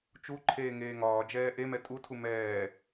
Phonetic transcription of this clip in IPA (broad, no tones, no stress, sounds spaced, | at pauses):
t͡ʃ u ǃʰ eː ŋ eː ŋ ɒː d͡ʒ ɛː ʔ e m ɛ tʼ u tʰ u m ɛː